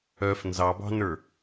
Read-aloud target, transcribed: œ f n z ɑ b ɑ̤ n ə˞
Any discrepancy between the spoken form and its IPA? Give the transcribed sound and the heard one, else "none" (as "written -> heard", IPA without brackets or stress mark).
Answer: none